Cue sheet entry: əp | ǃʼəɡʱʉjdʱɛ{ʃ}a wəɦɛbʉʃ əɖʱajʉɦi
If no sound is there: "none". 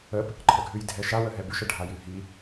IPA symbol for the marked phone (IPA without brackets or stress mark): ʃ